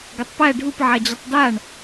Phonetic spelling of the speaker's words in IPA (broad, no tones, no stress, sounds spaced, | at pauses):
ɡ ə tˤ p æ ɖʱ u p ʕ a d͡ʑ ə tˤ d a ɳ